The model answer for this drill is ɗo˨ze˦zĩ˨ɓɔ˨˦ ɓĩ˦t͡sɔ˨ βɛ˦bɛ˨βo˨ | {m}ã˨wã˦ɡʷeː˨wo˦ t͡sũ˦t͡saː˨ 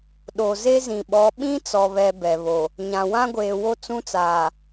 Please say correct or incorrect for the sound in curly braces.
incorrect